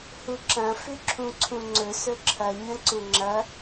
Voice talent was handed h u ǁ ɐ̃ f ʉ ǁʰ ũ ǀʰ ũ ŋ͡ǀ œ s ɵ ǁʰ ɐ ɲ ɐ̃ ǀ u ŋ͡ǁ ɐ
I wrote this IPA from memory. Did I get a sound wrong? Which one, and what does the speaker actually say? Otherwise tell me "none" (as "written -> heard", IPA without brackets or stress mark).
œ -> ɵ